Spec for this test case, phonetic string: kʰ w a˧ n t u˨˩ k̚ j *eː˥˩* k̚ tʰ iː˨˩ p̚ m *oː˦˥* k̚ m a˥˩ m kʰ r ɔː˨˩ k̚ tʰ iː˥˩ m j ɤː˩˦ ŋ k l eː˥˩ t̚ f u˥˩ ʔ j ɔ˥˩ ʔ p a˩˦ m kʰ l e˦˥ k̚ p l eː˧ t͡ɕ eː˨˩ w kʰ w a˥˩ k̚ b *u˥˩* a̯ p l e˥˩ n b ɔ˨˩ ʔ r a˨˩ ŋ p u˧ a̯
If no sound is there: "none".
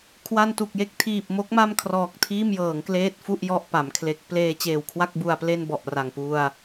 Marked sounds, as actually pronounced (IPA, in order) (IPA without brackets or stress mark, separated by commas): e˥˩, o˦˥, u˧